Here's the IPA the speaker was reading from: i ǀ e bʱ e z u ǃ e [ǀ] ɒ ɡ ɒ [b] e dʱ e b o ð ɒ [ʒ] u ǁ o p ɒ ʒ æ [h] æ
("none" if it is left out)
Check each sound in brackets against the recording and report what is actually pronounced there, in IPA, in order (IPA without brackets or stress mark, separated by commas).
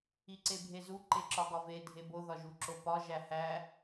ǁ, v, ʒ, h